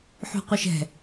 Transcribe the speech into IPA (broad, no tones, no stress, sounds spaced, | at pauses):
ħ ṳ qʷ ɨ ʃ ɛ̤